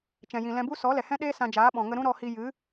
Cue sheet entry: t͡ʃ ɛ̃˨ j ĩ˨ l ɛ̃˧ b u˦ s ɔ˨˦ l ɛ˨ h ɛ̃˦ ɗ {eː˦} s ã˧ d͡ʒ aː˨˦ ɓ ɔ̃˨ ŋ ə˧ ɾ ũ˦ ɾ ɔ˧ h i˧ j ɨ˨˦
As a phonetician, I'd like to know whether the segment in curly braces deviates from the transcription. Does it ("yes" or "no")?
no